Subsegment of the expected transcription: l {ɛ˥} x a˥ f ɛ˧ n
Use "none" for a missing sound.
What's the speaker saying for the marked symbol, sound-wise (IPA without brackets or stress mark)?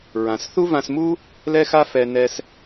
ɛ˥